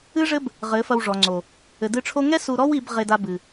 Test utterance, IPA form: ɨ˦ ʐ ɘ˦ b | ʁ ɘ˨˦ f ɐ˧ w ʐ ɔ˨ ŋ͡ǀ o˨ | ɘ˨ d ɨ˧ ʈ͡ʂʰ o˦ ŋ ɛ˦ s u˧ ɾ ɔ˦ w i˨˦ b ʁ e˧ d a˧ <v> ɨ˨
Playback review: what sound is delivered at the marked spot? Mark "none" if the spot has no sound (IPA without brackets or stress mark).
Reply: b